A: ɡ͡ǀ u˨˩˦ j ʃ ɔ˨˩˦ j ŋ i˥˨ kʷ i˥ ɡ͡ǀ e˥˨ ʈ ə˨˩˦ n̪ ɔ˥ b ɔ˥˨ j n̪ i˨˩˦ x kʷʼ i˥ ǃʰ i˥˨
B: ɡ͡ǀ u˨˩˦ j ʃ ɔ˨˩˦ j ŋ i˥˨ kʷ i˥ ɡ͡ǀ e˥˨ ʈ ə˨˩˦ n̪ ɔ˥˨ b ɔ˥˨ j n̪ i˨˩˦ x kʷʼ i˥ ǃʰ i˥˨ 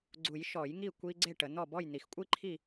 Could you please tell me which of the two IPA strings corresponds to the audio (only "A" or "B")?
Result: B